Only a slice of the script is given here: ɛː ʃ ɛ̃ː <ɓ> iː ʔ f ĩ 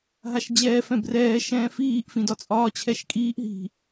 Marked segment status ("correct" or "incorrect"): incorrect